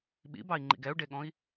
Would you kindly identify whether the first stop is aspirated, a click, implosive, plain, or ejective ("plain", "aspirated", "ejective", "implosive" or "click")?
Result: implosive